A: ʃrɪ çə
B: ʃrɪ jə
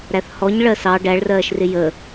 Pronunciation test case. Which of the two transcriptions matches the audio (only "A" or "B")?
B